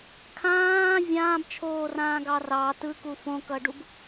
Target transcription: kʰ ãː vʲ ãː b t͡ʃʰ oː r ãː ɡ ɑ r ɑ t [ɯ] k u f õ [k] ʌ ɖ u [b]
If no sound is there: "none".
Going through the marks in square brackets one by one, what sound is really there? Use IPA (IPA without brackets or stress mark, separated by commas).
ɯ, k, b